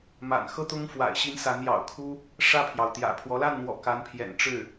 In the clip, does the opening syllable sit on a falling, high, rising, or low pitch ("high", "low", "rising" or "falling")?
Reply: low